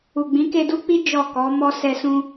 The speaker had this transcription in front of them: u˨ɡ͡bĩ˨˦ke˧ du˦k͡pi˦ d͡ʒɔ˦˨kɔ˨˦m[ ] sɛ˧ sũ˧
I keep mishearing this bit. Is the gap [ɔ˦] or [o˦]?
ɔ˦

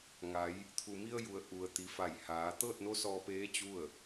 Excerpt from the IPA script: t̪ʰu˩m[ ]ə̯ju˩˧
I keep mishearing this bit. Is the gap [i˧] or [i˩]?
i˧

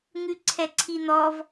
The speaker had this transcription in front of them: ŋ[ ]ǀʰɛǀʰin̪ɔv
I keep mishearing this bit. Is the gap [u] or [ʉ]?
ʉ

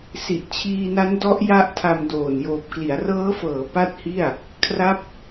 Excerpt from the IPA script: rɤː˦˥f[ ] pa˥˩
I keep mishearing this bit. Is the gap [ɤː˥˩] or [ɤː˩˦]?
ɤː˩˦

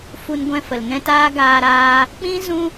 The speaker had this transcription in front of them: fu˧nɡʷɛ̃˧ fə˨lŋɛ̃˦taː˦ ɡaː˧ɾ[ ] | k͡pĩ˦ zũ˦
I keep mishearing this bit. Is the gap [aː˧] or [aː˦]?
aː˧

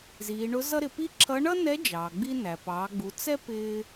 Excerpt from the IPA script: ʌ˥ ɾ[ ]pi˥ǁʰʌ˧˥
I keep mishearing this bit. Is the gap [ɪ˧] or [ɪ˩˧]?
ɪ˩˧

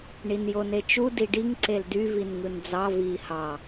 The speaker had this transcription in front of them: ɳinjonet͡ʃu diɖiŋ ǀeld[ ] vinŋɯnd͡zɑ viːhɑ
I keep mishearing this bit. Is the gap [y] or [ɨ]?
y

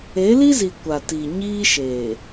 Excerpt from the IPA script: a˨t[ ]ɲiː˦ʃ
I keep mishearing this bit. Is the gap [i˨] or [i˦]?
i˨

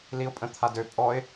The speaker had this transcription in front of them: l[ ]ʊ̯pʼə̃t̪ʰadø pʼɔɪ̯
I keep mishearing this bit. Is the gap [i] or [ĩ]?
i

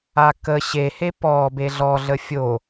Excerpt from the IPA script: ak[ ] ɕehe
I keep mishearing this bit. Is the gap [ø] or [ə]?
ə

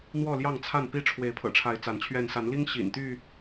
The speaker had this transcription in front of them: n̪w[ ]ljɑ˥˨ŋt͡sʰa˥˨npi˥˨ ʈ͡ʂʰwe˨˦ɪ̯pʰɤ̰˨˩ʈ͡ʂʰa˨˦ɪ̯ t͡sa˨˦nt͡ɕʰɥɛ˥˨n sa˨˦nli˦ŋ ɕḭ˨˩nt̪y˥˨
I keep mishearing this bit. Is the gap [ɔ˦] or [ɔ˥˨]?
ɔ˥˨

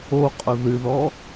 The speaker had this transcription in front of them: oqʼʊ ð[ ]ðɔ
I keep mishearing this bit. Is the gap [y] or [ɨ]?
ɨ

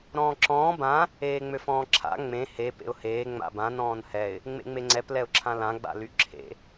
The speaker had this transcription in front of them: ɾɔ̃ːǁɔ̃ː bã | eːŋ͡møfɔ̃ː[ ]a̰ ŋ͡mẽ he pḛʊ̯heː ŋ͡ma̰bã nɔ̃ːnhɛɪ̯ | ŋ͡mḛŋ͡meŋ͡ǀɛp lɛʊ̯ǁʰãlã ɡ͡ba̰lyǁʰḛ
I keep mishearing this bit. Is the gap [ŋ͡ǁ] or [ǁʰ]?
ǁʰ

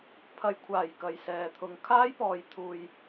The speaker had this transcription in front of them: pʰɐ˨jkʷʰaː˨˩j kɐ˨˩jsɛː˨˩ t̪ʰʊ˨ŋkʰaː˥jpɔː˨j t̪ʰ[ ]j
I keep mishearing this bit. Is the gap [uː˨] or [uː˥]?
uː˨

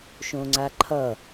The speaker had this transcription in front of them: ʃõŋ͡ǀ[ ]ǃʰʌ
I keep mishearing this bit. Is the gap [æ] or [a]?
a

